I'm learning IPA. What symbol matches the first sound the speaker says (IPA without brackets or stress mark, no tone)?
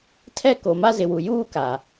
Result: tʰ